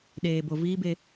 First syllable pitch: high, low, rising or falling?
low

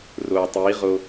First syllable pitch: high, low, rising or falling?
low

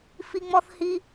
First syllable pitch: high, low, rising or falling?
high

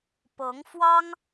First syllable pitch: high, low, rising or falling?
rising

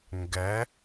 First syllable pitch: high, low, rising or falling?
rising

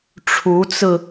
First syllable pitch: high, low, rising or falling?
rising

